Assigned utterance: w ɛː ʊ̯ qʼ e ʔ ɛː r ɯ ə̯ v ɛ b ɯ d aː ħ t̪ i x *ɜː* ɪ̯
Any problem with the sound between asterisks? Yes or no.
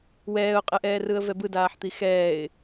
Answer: yes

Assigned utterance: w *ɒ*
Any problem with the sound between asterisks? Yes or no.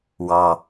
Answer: yes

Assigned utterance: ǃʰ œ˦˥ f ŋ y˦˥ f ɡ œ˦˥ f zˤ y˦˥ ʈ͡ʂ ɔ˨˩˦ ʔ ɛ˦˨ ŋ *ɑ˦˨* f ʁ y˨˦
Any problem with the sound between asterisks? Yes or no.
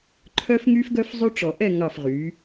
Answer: no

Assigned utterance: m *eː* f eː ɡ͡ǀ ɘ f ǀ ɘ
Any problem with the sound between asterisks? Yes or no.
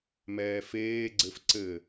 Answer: yes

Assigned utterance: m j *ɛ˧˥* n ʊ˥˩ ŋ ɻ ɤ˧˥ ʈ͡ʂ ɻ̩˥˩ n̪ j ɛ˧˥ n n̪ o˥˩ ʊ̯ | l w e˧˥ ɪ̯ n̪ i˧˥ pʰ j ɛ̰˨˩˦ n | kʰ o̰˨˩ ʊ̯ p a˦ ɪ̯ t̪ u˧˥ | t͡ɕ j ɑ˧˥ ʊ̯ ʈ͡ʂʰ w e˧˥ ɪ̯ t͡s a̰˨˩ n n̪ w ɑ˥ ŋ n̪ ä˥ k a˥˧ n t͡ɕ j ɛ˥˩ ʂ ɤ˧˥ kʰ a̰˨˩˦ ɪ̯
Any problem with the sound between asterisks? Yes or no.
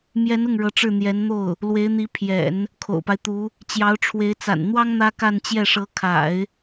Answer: no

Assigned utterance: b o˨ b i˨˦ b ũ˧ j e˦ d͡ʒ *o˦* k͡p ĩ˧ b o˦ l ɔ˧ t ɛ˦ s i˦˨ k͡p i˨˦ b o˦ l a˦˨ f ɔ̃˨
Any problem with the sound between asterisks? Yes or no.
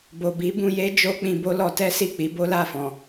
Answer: no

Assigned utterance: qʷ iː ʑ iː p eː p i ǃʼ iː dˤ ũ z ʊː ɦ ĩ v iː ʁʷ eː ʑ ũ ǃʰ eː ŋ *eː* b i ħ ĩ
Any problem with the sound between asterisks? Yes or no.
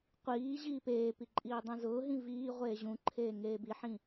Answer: no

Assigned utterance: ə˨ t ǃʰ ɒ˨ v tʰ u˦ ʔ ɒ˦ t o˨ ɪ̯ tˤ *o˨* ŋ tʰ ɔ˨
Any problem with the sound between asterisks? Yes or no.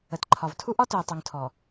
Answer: no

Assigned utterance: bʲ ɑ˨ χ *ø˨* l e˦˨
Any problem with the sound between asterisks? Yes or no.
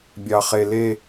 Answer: yes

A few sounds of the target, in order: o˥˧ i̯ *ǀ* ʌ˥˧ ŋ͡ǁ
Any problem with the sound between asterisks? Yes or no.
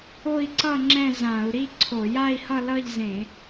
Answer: no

